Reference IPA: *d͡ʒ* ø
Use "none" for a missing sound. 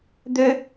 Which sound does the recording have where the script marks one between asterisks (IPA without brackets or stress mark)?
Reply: d̪